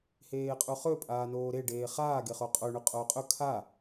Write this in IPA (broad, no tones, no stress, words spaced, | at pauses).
heːqʼuχɵ pʼaːnoːɾe ɖeːχaː ɡeχoqʼo ɳʉqʼoːqʼɵ kʰa